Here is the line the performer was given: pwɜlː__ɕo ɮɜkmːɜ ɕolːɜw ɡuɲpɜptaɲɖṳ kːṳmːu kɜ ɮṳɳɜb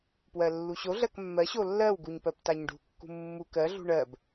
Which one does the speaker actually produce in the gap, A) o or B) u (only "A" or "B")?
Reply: B